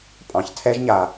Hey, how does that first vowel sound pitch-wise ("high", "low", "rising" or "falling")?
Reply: low